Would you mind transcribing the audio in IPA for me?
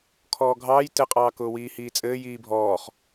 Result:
kʰɔːɡʱɑːj tɘqʼɑː kʊːwiːhiːt͡sʼɘː jiːbʱɔːχ

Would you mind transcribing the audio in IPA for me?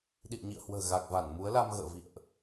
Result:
ɗḭ˧˨ə̯ɲḭ˧˨ə̯hwə̤ː˨˩ ɣa˨˩k̚va˧˩nmu˨˦ə̯la˧m ɣə̰ː˧˨vḭ˧˨ə̯ʔ

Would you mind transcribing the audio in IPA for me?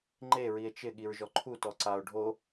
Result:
ŋ͡ǃe ɹie̯t͡ʃɪ ɠiɹʒɔǃʰu tɔǀao̯ ɖʱo

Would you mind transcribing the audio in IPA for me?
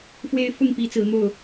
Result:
fwe˦ɪ̯fʊ˥˨ŋpi˨˦ t͡sɹ̩˨˦n̪o˥˨ʊ̯

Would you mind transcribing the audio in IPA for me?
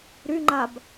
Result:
ɾyŋ͡ǃab

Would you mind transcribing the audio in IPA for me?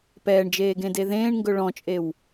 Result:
pɛːɳd͡ʒeːɡẽde ðẽːɳŋɡɵ ɭɔ̃t͡ʃʼew

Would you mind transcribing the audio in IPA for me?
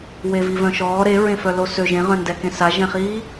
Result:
wevivœ̃ʃɔː ɾeɹẽfœ losø ʒẽʁœ̃ndɛkẽ saʒɛ̃χiː

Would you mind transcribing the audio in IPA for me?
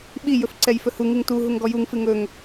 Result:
ɓi jɵfǀɛjfɵhu ŋɨŋtu ɦuŋɡɔjuŋ fɨŋɵŋ

